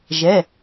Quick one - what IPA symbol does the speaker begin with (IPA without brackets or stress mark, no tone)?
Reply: ʒ